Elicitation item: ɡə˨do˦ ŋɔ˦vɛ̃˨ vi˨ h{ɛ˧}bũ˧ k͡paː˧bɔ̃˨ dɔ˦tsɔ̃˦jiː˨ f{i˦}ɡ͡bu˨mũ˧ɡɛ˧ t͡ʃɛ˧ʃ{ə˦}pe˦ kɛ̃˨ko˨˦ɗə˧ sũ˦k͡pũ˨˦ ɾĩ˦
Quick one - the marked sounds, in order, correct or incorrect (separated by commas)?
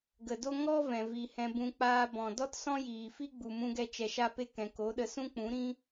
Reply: incorrect, correct, incorrect